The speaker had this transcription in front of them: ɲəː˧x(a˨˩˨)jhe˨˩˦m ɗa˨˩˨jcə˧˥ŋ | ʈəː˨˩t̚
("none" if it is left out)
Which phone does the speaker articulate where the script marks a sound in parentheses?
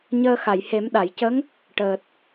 a˨˩˨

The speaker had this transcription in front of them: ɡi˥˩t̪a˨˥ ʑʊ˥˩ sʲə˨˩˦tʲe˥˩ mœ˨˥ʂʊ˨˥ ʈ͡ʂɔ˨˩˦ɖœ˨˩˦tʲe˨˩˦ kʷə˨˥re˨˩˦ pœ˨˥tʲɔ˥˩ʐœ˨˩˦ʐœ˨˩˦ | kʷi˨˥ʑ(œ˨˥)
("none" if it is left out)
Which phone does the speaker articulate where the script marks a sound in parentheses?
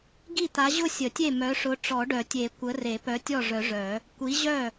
œ˥˩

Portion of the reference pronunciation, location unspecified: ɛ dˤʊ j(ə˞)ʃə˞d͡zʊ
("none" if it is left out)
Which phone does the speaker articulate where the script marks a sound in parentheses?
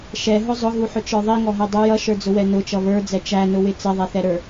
ʌ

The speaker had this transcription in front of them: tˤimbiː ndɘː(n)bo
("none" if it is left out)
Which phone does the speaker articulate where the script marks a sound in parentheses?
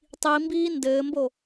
m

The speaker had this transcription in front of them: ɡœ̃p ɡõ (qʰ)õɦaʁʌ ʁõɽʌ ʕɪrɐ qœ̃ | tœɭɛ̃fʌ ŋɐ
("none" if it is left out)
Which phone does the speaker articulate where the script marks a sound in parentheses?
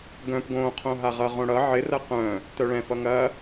qʰ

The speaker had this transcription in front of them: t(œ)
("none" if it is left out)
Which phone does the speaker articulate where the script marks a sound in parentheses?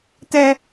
ɛ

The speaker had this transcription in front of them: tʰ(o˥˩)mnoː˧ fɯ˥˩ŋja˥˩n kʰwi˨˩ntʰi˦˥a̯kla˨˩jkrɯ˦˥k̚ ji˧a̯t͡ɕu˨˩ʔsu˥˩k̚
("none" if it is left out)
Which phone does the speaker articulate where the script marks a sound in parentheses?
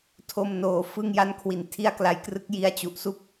o˥˩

